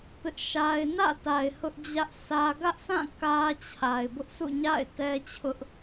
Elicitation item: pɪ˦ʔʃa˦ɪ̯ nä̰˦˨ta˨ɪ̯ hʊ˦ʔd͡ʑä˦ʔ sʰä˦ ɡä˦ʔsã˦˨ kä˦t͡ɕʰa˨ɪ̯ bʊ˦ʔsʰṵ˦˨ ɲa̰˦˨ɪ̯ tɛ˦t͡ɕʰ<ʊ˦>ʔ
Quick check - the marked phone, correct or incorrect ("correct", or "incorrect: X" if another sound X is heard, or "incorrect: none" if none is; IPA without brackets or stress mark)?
correct